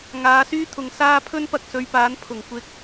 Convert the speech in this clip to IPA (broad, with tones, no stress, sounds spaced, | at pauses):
ŋ aː˨˧ s yː˥ t̪ʰ ʊ˨ ŋ s aː˥ pʰ ɵ˥ n p ɐ˧ k̚ s ɵ˨˧ ɥ p aː˨˥ n pʰ ʊ˨˩ ŋ kʷ ɪ˧ k̚